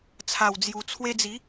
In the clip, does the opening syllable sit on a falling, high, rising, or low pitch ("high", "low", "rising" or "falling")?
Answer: low